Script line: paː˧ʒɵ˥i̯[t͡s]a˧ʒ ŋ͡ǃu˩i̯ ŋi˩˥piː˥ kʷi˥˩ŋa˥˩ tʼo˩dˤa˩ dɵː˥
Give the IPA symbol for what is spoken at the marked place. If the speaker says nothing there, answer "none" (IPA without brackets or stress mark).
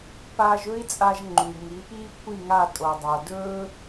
t͡sʼ